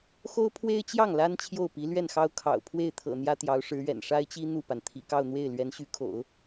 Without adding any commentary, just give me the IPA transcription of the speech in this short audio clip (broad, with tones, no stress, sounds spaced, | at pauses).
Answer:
x o˥ ʊ̯ pʰ w e˥ ɪ̯ t͡ɕ j ɑ˥˩ ŋ l a˥ n t͡ɕʰ j o˥˩ ʊ̯ p i˧˥ l ɥ ɛ˥˩ n x ɑ˥ ʊ̯ kʰ ɑ̰˨˩ ʊ̯ pʰ w e˥˩ ɪ̯ t̪ʰ ɤ̰˨˩ n̪ j ä˥ t̪ j ɑ˧˥ ʊ̯ ʂ ɻ̩˧˥ ɥ ɛ̰˨˩ n ʂ a˥ ɪ̯ t͡ɕ i˥ n̪ u˥˩ p a˩ n t̪ʰ ḭ˨˩ k ɑ˥˧ ʊ̯ n̪ w e˥˩ ɪ̯ l ɥ ɛ˧˥ n ɕ y˧˥ kʰ o̰˨˩˦ ʊ̯